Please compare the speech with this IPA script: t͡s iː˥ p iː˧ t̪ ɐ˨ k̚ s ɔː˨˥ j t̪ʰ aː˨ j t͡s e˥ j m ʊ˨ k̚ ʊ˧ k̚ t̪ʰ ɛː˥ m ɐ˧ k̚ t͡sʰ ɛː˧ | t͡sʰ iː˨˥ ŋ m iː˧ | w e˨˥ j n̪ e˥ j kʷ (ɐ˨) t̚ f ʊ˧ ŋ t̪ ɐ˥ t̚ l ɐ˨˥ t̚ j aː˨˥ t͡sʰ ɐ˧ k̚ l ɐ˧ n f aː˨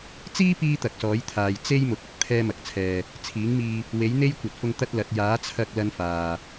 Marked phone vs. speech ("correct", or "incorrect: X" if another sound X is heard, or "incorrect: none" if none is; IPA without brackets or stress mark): correct